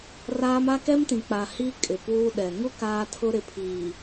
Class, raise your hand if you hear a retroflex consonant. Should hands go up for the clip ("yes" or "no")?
no